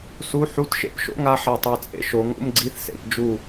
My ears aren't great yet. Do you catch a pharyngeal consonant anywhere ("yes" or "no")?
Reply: yes